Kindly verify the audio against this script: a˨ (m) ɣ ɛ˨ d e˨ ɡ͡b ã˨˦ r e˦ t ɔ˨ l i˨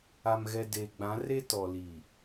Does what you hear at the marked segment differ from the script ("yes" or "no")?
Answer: no